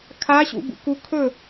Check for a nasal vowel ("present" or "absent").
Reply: absent